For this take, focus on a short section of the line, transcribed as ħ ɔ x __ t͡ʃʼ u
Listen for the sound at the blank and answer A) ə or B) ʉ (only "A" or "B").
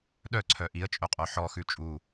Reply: B